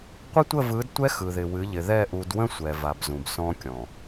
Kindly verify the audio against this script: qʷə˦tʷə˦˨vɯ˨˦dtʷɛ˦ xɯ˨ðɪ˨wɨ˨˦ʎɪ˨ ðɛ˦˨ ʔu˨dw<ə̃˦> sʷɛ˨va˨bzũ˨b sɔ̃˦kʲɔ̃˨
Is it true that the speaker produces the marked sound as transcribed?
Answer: yes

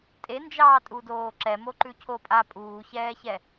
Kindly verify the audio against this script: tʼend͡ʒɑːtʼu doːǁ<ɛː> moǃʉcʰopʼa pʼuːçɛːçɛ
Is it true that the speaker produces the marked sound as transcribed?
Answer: no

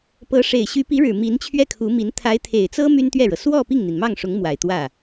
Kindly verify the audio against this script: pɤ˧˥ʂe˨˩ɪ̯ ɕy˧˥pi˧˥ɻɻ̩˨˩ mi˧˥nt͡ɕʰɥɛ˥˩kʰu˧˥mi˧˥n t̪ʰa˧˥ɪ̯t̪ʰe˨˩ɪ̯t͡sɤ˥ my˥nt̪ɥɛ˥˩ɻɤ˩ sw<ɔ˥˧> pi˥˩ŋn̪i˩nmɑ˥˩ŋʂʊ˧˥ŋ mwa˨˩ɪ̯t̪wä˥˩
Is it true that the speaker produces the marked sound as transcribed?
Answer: yes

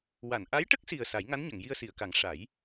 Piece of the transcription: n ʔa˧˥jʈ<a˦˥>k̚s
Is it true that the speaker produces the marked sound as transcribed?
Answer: no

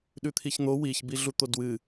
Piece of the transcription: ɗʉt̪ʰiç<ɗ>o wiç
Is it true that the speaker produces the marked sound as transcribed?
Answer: no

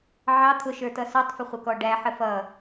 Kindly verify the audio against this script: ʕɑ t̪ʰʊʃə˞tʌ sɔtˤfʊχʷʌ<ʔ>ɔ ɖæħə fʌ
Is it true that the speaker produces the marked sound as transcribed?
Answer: no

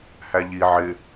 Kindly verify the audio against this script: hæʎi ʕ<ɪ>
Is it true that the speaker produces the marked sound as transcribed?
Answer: yes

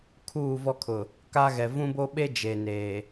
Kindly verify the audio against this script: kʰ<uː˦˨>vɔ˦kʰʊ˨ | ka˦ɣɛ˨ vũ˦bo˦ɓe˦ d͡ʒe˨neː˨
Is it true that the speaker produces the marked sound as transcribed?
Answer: yes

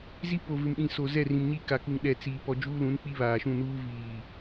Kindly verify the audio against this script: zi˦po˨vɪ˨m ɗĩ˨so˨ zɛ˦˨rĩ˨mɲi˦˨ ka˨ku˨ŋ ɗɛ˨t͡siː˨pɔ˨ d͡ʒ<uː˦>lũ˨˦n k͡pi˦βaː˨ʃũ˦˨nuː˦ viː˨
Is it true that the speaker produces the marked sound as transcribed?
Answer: yes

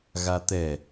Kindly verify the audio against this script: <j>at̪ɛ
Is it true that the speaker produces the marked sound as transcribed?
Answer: no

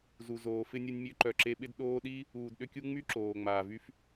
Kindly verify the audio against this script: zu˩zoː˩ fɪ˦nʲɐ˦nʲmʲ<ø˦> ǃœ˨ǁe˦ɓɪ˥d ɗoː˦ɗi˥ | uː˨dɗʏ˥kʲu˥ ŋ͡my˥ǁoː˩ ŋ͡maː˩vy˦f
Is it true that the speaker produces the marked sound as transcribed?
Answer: yes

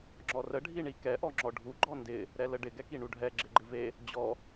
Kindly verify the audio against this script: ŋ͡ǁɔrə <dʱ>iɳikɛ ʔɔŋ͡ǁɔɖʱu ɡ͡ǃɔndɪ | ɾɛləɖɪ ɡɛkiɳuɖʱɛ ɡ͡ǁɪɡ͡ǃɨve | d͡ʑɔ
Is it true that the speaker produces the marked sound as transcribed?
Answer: no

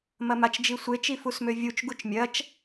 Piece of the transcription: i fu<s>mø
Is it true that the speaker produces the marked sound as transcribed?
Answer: yes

